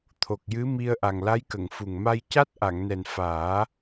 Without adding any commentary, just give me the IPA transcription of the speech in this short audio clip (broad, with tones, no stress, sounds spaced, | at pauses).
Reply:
t̪ʰ o˨˩ k̚ j ɨ˧˥ m i˧ ə̯ ʔ a˨˩ ŋ l a˧˥ j k ə˨˩˨ ŋ f u˨˩ ŋ m a˧ j c a˦˥ t̚ ʔ a˨˩˨ ŋ n ɛ˨˩ n f aː˨˩˦